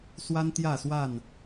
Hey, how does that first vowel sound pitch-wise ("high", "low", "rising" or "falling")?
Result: high